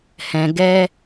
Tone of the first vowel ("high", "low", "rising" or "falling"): low